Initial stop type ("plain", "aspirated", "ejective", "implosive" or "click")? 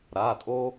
ejective